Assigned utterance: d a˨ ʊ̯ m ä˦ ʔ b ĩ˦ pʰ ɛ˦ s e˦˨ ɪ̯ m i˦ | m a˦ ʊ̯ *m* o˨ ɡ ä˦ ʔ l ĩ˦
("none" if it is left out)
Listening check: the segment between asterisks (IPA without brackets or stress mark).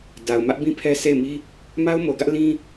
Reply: m